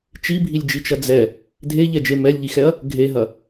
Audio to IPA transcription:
t͡ʃ i bʱ i lʲ d͡ʒ i t͡ʃ ɐ d͡z ɛ | dʱ e ʎ ɛ d͡ʒ e m ɛ lʲ ʎ i x ɛ ɐ̯ | ɡʱ e ɦ ɐ

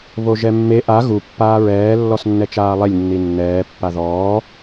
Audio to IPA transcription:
β o ʒ ɛ mː e ʔ a ɣ u pː aː ɹ ɛː lː ɔ s nː ɛ t͡ʃ aː lˠ e lʲ nː i nː ɛː pː a ð ɔː

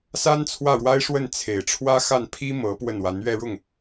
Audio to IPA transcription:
s a˥ n t͡sʰ w ä˥˩ ɻ w a˥ ɪ̯ ʂ w ə˥˩ n t͡sʰ e˨˩ ɪ̯ ʈ͡ʂʰ w ä˥ x a˥˩ n pʰ i˥ m ɤ˧˥ p w ə˥˩ n w a˧˥ n ɥ ɛ˥˧ ɻ ʊ˥˩ ŋ

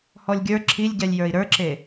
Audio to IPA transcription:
h ɔ lʲ ɡʲ ə˞ ǁʰ i lʲ ɟ ɛ lʲ j ə˞ i̯ ɾ ə˞ ǁ e

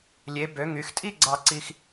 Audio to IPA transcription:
lʲ e˩˧ b ø˩˧ ŋ y˩˧ x tʼ i˥˧ ɡ͡ǀ ɑ˧ ǀ i˧ x

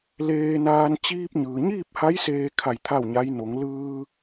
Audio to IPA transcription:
l eː˧ n aː˧ n t͡ɕ iː˧ p̚ ɲ ɯː˩ ɲ iː˥˨ p̚ h a˧˥ j s eː˧ kʰ a˧˩ j t̪ʰ a˥˨ w ɲ a˧˥ j n o˩˧ ŋ l ɯː˧

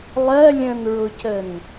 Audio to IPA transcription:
lˠ ɜ lʲ ə̃ n ɹ ʊ c ə n

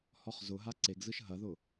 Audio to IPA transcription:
h ɔ χ z ʊ ɦ a ǀ e ɡ z ɯ ʃ ɦ ɐ ð ʊ

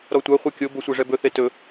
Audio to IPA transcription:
ɾ ɔ tʷ a χʷ ɛ kʲ o b o sʷ ɛ ʐ ɛ b ɵ θ e t ɵ

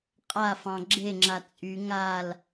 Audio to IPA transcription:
qʼ a f ɑ̃ ɡ͡ǁ e ŋ͡ǁ a t͡sʼ y ŋ a l

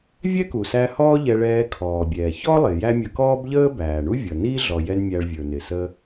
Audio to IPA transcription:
vʲ ɛ˥ k u˩ s æ˧ h ɔː˥ ʎ ɛ˧ ɭ ɛː˧ kʰ ɔː˩ bʲ ɛː˩ ç ɔ˥ lˠ ɪ˩ j æ˥ mʲ ə˧ k ɔː˥ b ʎ əː˥ b æː˩ ɳ u˥ vʲ ʌ˩ n iː˥ ɮ ɔ˩ j ɛ˧ n mʲ æ˧ ɭ vʲ ə˞˩ n ɪ˩ s ə˧

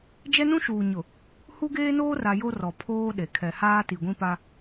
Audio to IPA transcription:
d͡ʒ ɛ˦ n ũ˦ ʃ uː˨ ɲ ʊ˨ | h u˦ ɡ eː˦ n oː˦ r a˨ j o˦ r ɔ˨ pʰ oː˦ ɗ e˨ kʰ ɛ˨ h aː˦ t i˨ ɡʷ ĩ˦ p a˦

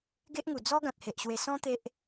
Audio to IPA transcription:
ɡ e˦ ʔ ŋ u˨˩ d͡z ɔ˦ ɡ ã˨ t̚ h e˨ ʔ ɕ w e˧ s ɔ̃˦ t̪ e˦ ʔ

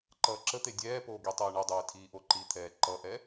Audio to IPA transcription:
ǃ ʌː ǁ ə t̪ e dʲ ɛː p oː ɡ i tˤ eː ɳ ʌ dˤ eː tʰ iː ʔ o ǃ i t̪ʰ ɛː ǃ ʌ ʔ ɛ

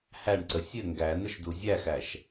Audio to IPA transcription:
h æ ɳ ǀ ə sʲ ɘ ŋ ɡ æ n ə ʃ d u zʲ æ x æ ʃ

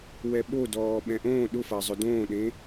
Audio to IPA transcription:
w ɛ ɓ o d ɔː ɓ ɛ̃ ʔ õː ɗ ʊ f a zˤ ʊ d õː ɗ ẽ

